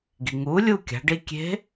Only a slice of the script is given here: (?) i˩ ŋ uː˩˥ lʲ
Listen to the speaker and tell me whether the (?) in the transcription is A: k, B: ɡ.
B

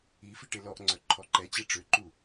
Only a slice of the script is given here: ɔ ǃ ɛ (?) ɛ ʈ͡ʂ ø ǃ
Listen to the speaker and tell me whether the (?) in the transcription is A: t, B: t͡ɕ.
B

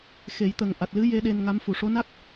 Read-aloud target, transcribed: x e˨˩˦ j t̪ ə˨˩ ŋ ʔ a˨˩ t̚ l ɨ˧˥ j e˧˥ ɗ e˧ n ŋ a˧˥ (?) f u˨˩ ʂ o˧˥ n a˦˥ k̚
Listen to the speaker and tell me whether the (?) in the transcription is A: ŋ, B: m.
B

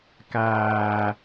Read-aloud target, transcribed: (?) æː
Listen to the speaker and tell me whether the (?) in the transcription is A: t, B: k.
B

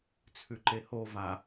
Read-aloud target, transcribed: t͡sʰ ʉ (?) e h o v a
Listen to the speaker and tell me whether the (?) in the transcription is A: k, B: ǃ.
B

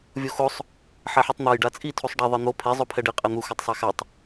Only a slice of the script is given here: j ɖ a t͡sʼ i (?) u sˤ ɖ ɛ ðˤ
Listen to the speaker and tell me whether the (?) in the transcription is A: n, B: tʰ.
B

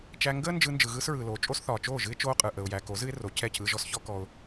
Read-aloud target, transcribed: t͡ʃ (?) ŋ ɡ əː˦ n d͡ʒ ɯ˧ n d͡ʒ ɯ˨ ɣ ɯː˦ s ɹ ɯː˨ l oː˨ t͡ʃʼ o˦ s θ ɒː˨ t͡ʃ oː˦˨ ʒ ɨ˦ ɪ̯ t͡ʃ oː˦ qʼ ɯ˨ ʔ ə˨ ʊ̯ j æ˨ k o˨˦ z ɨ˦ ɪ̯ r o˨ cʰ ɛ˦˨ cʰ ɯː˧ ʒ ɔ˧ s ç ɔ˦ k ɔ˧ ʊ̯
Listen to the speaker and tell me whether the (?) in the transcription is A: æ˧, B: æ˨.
A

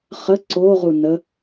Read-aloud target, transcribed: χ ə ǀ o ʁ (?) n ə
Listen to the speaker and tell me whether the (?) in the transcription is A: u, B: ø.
A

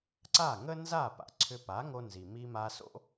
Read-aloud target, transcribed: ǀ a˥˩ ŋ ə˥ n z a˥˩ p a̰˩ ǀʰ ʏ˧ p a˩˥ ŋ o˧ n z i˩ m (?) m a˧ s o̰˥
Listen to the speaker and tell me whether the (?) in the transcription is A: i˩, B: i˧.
B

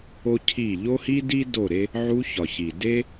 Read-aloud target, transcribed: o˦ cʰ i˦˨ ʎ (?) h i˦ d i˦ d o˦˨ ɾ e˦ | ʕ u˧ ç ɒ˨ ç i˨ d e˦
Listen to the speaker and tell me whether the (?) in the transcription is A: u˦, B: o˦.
B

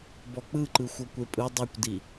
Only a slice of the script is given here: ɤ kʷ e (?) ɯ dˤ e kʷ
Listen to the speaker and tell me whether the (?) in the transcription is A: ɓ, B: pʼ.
B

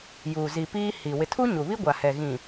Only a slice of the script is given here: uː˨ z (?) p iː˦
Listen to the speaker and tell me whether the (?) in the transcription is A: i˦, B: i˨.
B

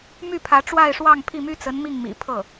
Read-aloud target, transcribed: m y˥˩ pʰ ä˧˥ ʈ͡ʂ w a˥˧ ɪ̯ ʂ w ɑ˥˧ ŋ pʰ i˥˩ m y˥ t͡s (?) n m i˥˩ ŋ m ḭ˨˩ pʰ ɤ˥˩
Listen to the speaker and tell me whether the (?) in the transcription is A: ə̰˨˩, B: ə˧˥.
B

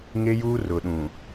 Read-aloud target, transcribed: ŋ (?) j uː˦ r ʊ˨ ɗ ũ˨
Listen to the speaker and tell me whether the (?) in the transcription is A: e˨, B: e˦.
B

